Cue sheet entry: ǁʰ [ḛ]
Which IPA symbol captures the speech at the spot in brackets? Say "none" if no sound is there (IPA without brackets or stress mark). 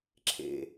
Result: ḛ